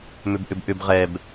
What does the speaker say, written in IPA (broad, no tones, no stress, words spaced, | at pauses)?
mʏbʔʏbʔʏb ʁɛb